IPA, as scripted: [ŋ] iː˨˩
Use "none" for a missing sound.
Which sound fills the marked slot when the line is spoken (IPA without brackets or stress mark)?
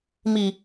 m